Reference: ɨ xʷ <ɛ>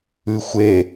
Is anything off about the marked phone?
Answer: yes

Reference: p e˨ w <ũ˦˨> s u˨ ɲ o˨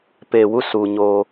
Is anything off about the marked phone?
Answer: yes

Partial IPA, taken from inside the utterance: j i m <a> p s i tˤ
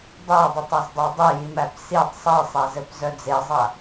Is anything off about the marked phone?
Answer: yes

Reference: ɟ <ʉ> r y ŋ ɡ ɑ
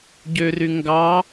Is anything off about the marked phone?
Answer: yes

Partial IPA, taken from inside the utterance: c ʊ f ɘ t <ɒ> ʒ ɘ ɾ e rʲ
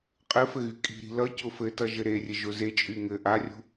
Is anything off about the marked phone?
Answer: yes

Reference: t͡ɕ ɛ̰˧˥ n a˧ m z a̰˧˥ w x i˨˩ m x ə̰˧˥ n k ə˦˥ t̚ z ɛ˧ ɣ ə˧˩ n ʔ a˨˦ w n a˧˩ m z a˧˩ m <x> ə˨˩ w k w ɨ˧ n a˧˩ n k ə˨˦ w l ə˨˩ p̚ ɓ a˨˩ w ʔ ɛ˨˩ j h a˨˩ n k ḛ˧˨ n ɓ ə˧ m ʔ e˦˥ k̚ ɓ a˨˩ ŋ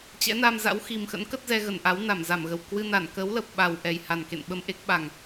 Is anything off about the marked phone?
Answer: yes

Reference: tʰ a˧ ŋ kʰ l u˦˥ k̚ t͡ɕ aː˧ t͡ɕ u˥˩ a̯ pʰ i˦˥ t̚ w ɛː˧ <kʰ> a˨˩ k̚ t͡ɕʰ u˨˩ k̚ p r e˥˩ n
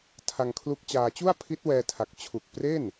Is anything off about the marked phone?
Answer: yes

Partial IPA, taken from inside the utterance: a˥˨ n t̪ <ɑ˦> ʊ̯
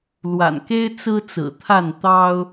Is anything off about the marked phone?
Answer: no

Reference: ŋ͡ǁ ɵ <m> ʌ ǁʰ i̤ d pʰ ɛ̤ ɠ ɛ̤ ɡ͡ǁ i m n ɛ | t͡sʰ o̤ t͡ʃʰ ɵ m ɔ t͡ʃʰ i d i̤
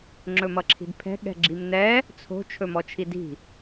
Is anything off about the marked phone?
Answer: no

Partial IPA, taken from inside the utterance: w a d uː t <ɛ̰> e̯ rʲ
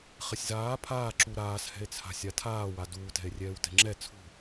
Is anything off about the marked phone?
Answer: yes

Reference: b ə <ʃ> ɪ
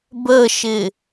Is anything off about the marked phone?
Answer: no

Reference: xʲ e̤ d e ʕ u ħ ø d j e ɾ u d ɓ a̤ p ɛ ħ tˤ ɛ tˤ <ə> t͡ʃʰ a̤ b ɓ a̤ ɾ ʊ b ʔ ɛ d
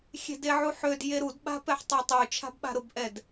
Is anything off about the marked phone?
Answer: yes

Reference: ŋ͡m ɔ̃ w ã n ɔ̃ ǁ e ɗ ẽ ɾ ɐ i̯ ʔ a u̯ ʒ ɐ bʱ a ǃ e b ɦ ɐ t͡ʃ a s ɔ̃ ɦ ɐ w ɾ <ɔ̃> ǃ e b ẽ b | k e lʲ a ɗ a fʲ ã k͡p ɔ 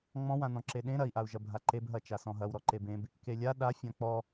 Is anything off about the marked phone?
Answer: yes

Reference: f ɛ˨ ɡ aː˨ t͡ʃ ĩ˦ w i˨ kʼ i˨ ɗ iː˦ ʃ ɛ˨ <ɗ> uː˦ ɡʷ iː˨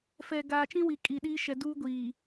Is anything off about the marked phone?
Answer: yes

